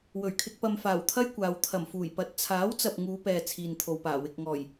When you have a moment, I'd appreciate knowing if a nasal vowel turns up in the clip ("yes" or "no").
no